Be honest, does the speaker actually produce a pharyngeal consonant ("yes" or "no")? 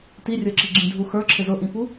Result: no